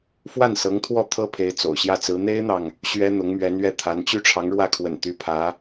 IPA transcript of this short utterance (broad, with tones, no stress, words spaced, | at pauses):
fwa˥˩nsɤ˧˥ŋt̪ʰwɔ˥˩ t̪ʰɤ˥pʰe˧˥ɪ̯ t͡so̰˨˩ʊ̯ ɕjä˥˩t͡sɹ̩˧˥ n̪e˥ɪ̯n̪ɑ˨ŋ | ɕɥɛ˥n̪ʊ˧˥ŋ mɥɛ˧˥nɥɛ˥˩t̪ʰa˧˥n t͡ɕy˥˩ʈ͡ʂʰɑ˧˥ŋɻwä˥˩kʰwə̰˨˩n t̪y˧˥pʰä˧˥